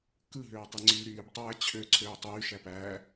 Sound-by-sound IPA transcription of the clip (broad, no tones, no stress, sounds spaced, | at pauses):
k ɯ ɦ øː tˤ i ŋ͡ǀ yː ɾ yː b tˤ æː t͡ɕʰ ø ǀʰ øː tˤ yː ʃ æ p æː